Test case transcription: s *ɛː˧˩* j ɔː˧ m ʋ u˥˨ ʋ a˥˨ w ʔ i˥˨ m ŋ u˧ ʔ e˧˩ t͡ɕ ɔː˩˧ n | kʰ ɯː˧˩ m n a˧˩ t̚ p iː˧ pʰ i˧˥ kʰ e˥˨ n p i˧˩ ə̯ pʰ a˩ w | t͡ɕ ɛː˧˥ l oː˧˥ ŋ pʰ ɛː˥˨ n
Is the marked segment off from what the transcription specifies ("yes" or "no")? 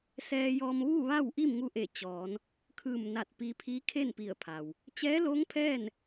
yes